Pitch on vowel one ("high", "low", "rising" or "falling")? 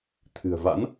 low